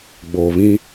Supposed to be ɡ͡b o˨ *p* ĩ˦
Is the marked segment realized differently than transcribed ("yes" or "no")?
yes